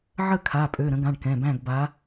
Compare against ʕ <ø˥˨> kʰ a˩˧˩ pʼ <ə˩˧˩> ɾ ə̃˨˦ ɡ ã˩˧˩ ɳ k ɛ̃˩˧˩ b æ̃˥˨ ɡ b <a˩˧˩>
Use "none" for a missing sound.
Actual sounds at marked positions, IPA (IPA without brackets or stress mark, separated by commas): ə˥˨, ø˩˧˩, a˨˦